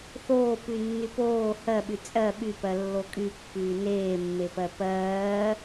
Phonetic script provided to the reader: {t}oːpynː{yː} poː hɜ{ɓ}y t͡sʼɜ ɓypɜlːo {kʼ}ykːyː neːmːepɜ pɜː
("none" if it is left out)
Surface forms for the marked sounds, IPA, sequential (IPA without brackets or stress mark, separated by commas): θ, y, ɓ, kʼ